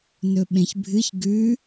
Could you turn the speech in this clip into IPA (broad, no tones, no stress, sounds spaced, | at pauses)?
n ɵ ɓ ẽ ç bʱ ɨ ç ɡ ʉ